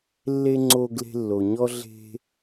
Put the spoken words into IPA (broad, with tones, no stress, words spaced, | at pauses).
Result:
lːe˥ŋ͡ǀo˦ ɡle̤˦lːo˨ɲɔ˥ ɮe̤˦